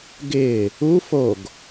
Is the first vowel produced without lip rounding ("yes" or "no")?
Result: yes